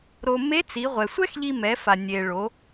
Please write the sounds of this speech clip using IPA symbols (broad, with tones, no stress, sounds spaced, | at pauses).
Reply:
ɾ o˧ m e˧˥ t͡s i˩˧ ʁʷ ɛ˩ sʷ ɛ˥ x ʎ i˧ m ɛ˩˧ f a˩ nʲ e˩ ɭ o˩˧